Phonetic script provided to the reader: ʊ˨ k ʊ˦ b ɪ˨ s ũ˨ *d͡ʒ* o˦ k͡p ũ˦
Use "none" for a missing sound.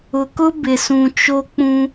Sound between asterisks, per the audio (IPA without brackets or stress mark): t͡ʃ